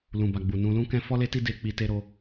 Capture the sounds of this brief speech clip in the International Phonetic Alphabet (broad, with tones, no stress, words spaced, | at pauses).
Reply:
lũ˨ba˨ɡ͡bu˨ nũ˨lũ˧kɛ̃˧ fɔ˦le˦ti˦ de˧ k͡pi˧te˦ɾo˦